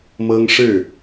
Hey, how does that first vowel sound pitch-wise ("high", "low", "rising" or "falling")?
high